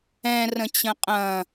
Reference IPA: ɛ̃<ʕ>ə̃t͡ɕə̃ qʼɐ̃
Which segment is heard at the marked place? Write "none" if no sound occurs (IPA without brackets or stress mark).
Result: r